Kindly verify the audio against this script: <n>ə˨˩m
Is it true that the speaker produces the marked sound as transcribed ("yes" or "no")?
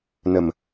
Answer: yes